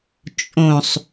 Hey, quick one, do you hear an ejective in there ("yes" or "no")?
yes